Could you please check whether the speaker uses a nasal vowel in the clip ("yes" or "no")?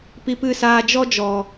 no